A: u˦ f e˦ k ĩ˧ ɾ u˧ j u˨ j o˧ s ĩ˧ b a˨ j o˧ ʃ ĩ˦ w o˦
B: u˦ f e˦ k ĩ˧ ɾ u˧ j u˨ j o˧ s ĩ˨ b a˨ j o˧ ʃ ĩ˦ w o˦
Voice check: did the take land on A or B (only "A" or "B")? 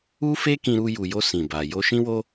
B